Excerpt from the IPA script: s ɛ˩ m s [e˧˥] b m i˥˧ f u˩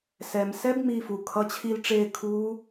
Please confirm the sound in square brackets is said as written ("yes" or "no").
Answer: no